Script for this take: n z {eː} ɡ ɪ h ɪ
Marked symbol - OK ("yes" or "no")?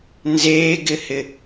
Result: yes